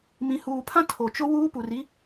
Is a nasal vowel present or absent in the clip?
present